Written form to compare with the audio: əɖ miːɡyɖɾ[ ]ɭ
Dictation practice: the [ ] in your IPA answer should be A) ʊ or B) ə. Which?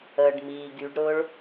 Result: A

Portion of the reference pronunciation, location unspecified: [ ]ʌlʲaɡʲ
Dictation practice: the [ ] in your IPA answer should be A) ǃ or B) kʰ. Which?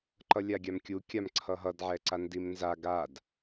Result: A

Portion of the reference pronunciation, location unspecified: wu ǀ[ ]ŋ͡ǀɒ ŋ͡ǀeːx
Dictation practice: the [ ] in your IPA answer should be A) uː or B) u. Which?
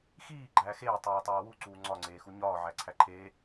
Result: A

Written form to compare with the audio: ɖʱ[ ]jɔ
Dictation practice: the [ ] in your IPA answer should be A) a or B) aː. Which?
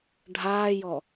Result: B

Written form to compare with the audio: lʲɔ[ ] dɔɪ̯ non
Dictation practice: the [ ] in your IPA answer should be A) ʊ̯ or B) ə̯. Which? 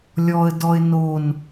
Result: B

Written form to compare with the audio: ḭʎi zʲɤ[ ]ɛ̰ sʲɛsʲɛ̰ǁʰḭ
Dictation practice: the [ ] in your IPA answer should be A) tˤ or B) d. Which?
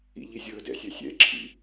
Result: B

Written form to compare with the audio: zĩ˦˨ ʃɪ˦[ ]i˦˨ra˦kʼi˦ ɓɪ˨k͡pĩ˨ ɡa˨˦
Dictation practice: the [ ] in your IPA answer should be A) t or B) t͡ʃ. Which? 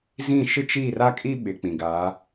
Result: B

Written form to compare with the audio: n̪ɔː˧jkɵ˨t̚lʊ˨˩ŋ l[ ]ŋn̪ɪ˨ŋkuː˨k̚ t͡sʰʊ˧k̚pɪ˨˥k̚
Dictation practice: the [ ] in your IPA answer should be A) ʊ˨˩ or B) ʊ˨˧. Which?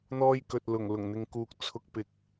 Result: A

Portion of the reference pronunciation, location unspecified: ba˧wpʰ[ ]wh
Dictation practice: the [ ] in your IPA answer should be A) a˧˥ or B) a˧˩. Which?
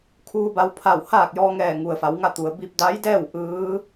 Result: B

